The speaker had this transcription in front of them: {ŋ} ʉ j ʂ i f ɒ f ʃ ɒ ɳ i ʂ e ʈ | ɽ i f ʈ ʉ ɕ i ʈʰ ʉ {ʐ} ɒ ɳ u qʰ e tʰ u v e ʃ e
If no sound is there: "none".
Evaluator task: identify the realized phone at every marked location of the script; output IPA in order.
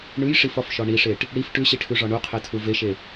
ɳ, ʐ

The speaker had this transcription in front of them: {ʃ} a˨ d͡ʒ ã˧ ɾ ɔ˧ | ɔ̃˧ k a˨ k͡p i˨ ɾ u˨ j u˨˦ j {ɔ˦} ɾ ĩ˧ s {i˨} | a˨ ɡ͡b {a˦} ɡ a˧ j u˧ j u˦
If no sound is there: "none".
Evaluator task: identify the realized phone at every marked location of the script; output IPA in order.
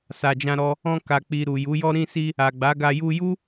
s, ɔ˦, i˧, a˨˦

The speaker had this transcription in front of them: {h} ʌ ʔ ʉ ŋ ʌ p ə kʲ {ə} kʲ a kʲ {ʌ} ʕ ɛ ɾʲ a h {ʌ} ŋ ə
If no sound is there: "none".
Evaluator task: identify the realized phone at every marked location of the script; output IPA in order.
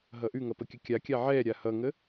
ɦ, ə, a, ʌ

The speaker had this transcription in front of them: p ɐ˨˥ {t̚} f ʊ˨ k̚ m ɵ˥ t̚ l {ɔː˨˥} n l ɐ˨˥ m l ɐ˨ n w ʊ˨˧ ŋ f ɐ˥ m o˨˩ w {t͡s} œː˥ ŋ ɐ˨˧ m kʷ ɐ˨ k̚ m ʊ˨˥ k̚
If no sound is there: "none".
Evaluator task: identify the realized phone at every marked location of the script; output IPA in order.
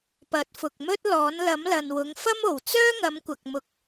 t̚, ɔː˨˥, t͡s

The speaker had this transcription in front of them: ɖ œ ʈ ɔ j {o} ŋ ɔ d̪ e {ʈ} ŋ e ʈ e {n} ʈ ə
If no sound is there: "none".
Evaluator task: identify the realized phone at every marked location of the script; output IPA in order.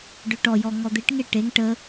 ɔ, ʈ, ŋ

